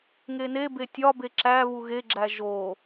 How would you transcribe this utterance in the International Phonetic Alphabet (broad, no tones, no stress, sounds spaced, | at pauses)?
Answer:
ŋ e n e b e tʲ ɒ b e ǁ æ β u ɣ e ɡ͡ǁ æ ʒ o